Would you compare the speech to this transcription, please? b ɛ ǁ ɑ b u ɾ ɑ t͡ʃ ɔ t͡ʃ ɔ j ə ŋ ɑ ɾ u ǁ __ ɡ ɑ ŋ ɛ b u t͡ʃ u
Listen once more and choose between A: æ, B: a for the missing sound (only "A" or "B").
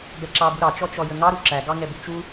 A